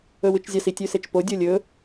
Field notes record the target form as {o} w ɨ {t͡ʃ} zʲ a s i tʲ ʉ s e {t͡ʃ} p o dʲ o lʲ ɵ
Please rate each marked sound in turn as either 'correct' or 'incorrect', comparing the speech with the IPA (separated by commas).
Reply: incorrect, correct, correct